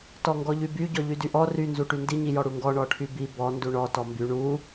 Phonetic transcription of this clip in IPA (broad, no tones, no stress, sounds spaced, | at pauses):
t ɔ ŋ ɡ ɔ ʎ y b y ɟ ɔ ʎ y d y ʔ ɔ r y n z u ʈ y n d i ɲ i j ɔ ɽ u ŋ ɡ ɔ ɳ ɔ ʈʰ y b i b ɔ n d u ɳ ɔ t ɔ m b y ɳ u